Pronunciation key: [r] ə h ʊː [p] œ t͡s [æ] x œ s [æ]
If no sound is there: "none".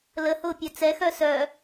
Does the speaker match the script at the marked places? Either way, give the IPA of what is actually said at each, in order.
l, pʲ, ɛ, œ

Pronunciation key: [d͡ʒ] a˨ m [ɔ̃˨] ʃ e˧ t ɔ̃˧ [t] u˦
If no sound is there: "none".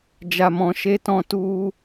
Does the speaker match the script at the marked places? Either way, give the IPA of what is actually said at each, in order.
d͡ʒ, ɔ̃˨, t

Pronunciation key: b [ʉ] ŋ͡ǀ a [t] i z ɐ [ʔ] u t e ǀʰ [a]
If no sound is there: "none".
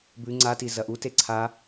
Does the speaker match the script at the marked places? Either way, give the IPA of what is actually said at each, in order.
ʉ, t, ʔ, a

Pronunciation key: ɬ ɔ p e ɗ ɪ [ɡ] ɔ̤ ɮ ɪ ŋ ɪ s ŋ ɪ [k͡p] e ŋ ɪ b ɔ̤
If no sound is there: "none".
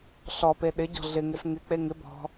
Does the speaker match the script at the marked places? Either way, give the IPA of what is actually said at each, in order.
ɟ, k͡p

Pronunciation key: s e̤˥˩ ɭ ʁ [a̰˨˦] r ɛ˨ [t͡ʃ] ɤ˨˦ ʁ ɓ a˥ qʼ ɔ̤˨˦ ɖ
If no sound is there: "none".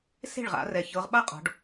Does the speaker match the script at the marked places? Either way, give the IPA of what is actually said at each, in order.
a̰˨˦, ç

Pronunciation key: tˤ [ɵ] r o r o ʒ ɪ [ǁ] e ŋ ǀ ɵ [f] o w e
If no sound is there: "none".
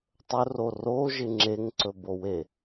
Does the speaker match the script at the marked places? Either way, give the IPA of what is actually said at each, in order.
ɵ, ŋ͡ǁ, b

